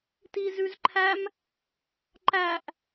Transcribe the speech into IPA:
tizʉzǃʰæm | ǃæʔ

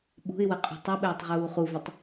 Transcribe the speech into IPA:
ɓṳɪ̯wə qʼṳtˤɘɓɘːtˤ ʁuːχuvətˤ

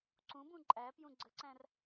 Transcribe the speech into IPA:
ǀũbũ ǃʼæpjũ ɡ͡ǀəǀæ̃r

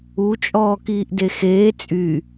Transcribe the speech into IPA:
ut͡ʃʼɔːkiːʔ dexeː t͡sʼy

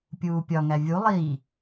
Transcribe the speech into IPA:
pʲuːpʲɒŋæ vʲu lˠiː

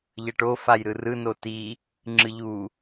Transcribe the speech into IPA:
ʎʌʈo fajɾɯrɯ noti | ŋ͡ǁɯʎu

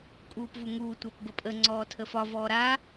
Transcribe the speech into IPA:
kʼuːpvuŋuː tʷapbəpʼə ŋ͡ǀɔːtʰəfɒ vɔːɾa

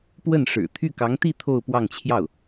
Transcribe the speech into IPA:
pwə˥˩n ʂɻ̩˨˩ t̪ʰy˥˩kɑ˧˥ŋt̪i˥˧ t̪ʰo˥˧ʊ̯ pwɑ˥˧ŋt͡ɕʰjɑ˥˩ʊ̯

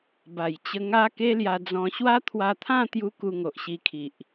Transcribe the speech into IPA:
ba˨˩jt͡ɕə˧ ŋa˦ ke˦lja˧d͡zɔ̃˧ ɕwa˦t̪ʰwa˧t̪ʰã˥˧ t̪ju˦ku˧ ŋo˨ʔɕi˧kʰi˨ʔ

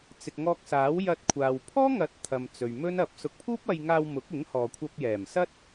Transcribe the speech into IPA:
t͡sɪ˨k̚ŋɔː˧k̚saː˨˥w jɐ˧t̚kʷʰaː˨w pʰɔː˥ŋɐ˨˥t̚ t̪ʰɐ˨m t͡sɵ˨ɥmɵ˥n ɐ˨˥p̚ sʊ˨˥k̚pʰuː˥p̚ɐ˧jŋaː˧w mʊ˨˥k̚ɪ˨˥ŋhɔː˨ kʷʰɐ˧p̚jɛː˨˩msɐ˥t̚

